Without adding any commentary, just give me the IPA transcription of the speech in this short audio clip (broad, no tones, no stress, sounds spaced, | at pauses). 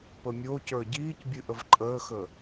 p ə mʲ o c ə˞ ɟ iː c bʲ ɨ ʔ ə v ǃʼ əː x ə